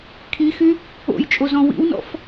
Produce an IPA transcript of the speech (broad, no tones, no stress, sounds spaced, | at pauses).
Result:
kʰ i x y | o̰ j t͡ʃʼ o z ɔ̃ w ḭ w n ɔ̰ f